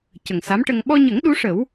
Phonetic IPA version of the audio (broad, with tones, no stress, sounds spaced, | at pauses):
c ə˨˩ ŋ s a˧˥ m ʈ ə˧ ŋ ɓ ɔ˧ ɲ ə˨˩˦ ŋ ɗ u˧˥ ʂ ə˨˩˦ w